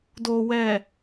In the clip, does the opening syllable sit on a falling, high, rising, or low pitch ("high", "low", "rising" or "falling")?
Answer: low